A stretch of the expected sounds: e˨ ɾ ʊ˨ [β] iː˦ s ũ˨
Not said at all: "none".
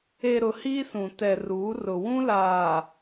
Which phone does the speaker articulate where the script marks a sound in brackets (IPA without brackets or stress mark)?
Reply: h